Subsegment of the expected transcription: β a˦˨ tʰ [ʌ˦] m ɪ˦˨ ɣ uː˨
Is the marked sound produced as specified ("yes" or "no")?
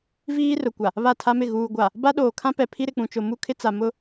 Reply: no